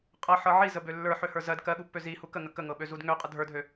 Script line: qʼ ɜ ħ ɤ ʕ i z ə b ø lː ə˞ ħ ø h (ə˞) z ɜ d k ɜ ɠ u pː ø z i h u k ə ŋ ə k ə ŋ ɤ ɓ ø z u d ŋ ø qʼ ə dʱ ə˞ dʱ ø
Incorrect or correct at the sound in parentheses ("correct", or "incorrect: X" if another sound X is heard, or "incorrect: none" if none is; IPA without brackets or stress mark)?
correct